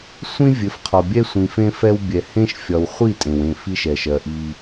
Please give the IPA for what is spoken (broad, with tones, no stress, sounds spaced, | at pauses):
sʷ ĩ˦ vʲ ɘ˨˦ f qʰ ɒ˨ bʲ ɛ˦ sʷ ĩ˨ f ẽ˦ f ɛ˦ w bʲ ɛ˨ h ẽ˦ ʃ fʲ ɒ˨ w χʷ i˦˨ tʼ ẽ˨ w ẽ˦˨ f i˦ ʃ ɛ˨ ʃ ɜ˨ ʔ i˦